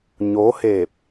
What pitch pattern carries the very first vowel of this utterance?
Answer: rising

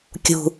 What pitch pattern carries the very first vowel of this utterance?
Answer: low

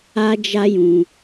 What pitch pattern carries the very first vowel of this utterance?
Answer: high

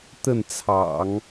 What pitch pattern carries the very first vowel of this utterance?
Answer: falling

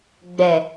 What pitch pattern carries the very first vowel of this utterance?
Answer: low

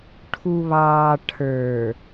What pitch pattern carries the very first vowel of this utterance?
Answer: low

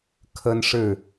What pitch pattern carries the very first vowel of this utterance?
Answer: high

